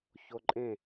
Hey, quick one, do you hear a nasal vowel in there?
yes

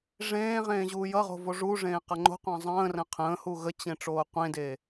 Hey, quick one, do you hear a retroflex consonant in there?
yes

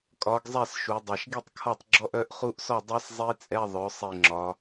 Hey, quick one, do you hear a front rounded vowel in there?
yes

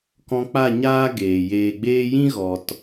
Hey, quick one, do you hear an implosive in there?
no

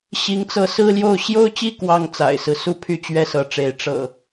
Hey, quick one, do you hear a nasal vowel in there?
no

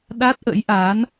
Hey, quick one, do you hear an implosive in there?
yes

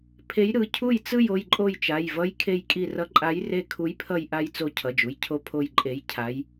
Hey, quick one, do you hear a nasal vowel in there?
no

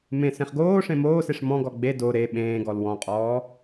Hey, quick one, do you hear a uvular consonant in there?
yes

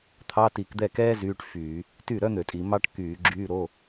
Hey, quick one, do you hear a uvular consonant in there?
no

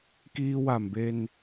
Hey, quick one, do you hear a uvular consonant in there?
no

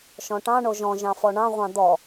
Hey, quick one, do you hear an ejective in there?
no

